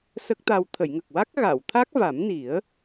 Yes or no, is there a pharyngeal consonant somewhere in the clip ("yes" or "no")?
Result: no